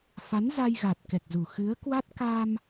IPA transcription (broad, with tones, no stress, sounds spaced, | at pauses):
f a˨˦ n z a˧ j ɣ a˨˩ t̚ k ɛ˨˩ k̚ z u˨˩ x ɨ˨˦ ə̯ k w a˦˥ t̚ k a˧ m